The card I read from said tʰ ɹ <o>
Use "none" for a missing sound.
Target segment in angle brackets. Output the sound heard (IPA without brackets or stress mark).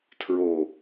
o